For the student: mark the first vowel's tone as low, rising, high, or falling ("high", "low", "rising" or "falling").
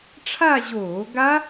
falling